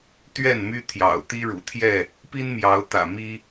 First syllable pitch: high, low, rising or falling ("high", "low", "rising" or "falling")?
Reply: falling